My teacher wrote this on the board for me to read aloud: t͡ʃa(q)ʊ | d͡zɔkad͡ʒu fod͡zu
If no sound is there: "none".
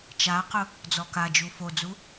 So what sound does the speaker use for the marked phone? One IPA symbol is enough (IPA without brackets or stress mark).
q